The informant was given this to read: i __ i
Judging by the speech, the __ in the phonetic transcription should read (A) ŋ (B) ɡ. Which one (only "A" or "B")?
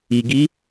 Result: B